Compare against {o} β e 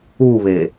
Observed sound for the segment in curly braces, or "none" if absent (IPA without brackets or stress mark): u